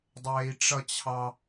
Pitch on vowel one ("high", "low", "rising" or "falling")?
low